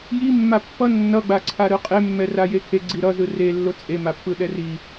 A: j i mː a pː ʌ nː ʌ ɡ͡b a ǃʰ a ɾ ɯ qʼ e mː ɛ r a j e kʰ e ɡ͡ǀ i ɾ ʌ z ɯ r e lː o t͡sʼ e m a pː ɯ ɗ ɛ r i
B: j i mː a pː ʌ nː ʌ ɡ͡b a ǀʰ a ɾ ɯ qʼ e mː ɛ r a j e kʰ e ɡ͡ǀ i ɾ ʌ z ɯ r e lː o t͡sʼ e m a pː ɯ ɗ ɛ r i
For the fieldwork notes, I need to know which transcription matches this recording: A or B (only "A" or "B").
B